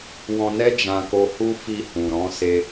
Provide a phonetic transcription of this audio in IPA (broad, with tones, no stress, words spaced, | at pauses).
wɔ̃˧nɛ˦ d͡ʒã˧ko˧hu˦ fi˧hũ˨ɾɔ̃˨˦ se˧